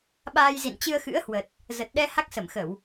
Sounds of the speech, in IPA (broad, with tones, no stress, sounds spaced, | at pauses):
ɓ aː˧ j z ḭ˧˨ n t͡ɕ ɨ˧ ə̯ x ɨ̰˧˥ ə̯ h w ə˨˩ t̚ | z ə˨˩ t̚ ɗ ɛ˧ h a˦˥ k̚ s ə˧˩ m x ə˧˩˨ w